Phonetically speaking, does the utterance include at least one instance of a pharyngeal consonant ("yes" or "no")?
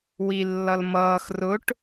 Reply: no